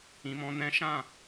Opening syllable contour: low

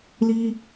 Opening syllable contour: high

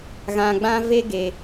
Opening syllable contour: low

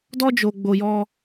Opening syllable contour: high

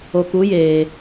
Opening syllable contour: low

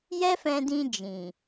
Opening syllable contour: high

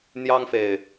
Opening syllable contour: high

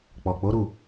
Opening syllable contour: low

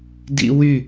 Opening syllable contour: high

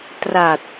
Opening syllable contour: low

